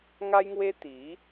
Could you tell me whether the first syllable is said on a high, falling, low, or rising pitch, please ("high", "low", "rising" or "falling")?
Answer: high